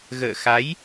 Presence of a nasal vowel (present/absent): absent